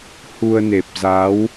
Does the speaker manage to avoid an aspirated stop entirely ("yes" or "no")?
yes